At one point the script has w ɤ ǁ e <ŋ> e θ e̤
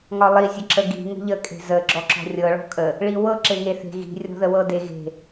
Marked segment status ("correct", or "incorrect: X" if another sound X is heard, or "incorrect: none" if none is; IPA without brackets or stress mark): correct